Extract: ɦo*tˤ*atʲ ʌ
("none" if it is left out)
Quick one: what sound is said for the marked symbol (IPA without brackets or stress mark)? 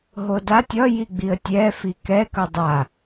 d